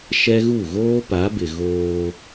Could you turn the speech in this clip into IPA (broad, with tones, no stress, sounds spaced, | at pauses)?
ʃ ɛ˦ ɣ u˦˨ ɣ oː˦ p a˨˦ b ɪ˨ ɣ oː˦